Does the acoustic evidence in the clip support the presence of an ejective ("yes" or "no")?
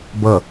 no